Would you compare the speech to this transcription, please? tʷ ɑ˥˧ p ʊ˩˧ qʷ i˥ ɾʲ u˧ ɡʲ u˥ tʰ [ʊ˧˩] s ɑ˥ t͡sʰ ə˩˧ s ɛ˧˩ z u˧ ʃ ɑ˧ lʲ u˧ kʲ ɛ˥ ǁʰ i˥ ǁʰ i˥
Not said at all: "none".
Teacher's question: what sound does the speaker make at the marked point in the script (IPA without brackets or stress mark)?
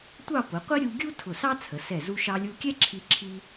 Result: ʊ˧˩